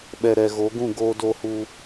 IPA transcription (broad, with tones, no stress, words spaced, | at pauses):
ɓɛ˨ɾɛ˨ɣo˨˦ɡũ˦˨ ɡoː˧do˧hu˧